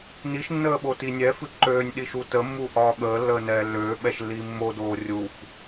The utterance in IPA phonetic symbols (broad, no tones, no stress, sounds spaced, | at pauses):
n i ʃ nː əː ɓ o t i nʲ ɛ f ɨ ǃ øː nʲ ɗ i ʃ u t ə mː u ʔ ɒː ɠ əː lː əː n ɛː lː øː ɓ ɛ ʃ lː iː mː o d oː rʲ u f